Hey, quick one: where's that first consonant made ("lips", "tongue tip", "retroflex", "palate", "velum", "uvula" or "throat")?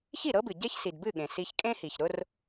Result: palate